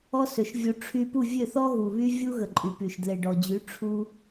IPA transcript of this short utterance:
ɔ˦ s ø˨ ʃ vʲ u˧ ʈ͡ʂʰ y˧ p u˦˨ vʲ ø˦˨ θ ɔ˦ ɣ u˨ β y˦ vʲ u˦ ɣ ə˨ ǃʼ y˨ p y˨ ʃ d l e˨ ɖ ɔ˨ d͡ʑ y˨˦ ʈ͡ʂʰ u˦

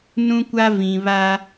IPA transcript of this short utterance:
n ũ˦ kʷ a˦ v ĩ˨ β a˦

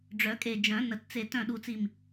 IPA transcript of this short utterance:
ɖ͡ʐ œ˨˩˦ kʼ e˧˩ d͡ʒ œ̃˨˩˦ n ə˨˩˦ t t͡s e˧˩ t œ̃˧˩ ɗ u˨˩˦ t͡s i˧˩ m

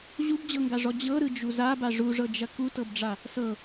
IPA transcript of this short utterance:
ʑ u b d͡ʑ ɤ ŋ ɡ a ʐ ɔ d͡ʑ ɤ ɾ ɯ d͡ʒ u z a b a ʐ u ʐ ɤ d͡ʒ ɐ k u t ɤ b ɖ͡ʐ a | s ɤ

